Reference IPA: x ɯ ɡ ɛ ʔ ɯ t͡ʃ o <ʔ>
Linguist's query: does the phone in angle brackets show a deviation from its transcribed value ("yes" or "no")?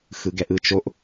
no